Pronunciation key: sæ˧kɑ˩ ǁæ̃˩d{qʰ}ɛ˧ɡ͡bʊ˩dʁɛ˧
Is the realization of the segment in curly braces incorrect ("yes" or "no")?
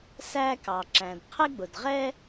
no